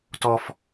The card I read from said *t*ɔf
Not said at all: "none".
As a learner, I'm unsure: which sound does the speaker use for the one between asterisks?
t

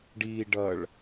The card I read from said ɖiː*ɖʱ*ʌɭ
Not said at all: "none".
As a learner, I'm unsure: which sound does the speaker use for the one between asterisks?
ɖ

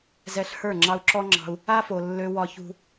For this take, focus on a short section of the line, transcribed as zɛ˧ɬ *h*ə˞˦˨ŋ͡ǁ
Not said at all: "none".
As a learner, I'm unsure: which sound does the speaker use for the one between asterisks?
h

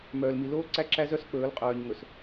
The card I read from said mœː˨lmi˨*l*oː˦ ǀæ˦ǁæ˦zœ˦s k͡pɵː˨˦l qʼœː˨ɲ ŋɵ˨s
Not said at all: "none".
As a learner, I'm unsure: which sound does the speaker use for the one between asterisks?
l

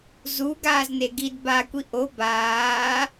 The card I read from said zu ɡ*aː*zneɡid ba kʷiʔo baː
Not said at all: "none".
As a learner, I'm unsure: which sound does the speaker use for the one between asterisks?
aː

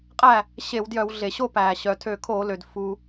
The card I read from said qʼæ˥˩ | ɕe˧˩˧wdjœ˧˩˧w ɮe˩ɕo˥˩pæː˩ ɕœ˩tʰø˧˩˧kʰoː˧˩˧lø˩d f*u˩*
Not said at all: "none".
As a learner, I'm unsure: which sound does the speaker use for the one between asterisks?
u˩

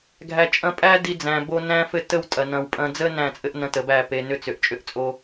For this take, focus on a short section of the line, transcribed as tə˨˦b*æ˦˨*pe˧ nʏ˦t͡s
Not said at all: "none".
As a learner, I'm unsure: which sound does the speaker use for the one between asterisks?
æ˦˨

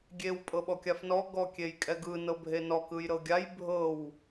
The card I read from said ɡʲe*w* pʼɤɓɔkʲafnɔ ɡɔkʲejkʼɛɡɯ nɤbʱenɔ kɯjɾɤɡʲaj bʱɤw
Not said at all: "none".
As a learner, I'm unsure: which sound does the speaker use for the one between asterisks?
w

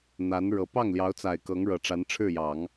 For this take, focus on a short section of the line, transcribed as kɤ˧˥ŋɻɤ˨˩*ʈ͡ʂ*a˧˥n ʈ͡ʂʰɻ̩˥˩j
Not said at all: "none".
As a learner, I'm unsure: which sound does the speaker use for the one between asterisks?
ʈ͡ʂ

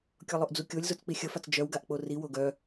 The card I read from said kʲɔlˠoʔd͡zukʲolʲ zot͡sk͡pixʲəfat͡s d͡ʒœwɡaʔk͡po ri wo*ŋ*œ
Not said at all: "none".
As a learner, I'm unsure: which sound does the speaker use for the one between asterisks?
ɡ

